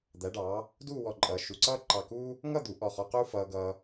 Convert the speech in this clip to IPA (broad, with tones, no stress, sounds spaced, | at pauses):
d̪ æ˩˧ ɖ ɑː˩˧ | d uː˥˧ w ɔ˧˩ ǃʼ ʌː˩˧ ʃ u˩˧ ǀ ʌː˥ ǃ ɑ˧˩ k uː˥ | ŋ ʌ˥˧ d̪ u˩˧ ʔ ɔ˧˩ χ ɔ˧ q uː˥ f ʌː˧ ɡ ʌː˧